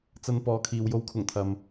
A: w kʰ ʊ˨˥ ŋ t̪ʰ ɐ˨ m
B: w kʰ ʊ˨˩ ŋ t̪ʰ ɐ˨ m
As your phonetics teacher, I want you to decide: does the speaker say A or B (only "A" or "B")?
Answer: B